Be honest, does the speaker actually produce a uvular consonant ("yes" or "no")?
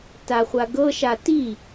yes